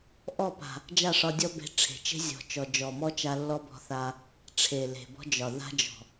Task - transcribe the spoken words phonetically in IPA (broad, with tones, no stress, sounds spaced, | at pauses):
ʔ ɔ˦˨ p a̤˨ | d͡ʒ a˦˨ ʂ ɒ˧ dʲ ɔ˦ b e̤˧ ʈ͡ʂʰ e̤˨ t͡ʃ e̤˦ zʲ ɔ̤˨ t͡ʃ ɔ˨ d͡ʒ ɔ˨ m ɔ˦ t͡ʃ a˧ lː ɔ˦ b ɔ̤˧ θ a˦ | ʈ͡ʂʰ e˨ l e̤˨ b ɔ̤˦ d͡ʒ ɒ˨ ð a̤˦ d͡ʒ ɔ̤˨